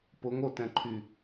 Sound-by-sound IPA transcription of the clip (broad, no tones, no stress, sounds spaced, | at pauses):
p ʊ ŋ o t ɛ̃ ǃʰ y